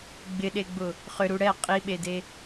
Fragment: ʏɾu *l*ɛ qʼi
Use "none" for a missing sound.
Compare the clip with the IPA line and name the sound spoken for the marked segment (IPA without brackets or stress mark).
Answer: ɽ